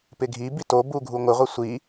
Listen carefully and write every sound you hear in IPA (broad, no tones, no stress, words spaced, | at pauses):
pɪɡʱi bito buɡʱuŋʷɪ ʁʷɪsʷi